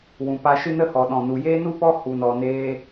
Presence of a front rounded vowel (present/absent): absent